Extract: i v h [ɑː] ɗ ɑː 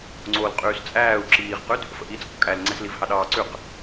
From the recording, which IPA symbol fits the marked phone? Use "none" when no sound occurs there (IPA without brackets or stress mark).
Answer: ɑ